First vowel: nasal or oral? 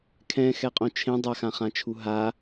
nasal